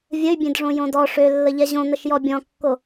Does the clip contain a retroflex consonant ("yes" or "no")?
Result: yes